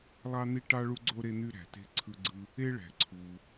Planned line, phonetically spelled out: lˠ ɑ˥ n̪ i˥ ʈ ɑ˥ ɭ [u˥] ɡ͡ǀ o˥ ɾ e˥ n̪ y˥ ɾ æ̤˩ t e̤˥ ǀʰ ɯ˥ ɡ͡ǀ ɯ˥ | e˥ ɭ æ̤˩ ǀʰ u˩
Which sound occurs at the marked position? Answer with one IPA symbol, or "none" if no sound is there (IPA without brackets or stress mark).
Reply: u˥